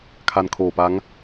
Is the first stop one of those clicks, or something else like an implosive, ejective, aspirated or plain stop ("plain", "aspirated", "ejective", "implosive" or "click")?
aspirated